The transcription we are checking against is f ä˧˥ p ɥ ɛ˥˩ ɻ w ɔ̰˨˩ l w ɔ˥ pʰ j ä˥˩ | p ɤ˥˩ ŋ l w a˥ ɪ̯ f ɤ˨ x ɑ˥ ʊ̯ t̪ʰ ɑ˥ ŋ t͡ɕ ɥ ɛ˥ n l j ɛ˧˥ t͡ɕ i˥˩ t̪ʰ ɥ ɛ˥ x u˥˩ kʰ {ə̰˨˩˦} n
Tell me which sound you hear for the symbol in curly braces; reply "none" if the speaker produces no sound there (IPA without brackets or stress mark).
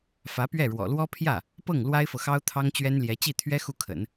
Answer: ə̰˨˩˦